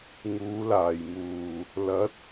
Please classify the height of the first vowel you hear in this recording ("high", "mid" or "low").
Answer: high